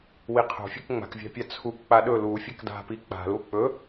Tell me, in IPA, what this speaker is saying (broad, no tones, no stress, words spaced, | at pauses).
wiqʰo̤fʲek ŋ͡ma̤kvʲa̤pʲa t͡sʰuk k͡paɗɵ lu fʲakda̤pi k͡pa̤lu k͡pɵ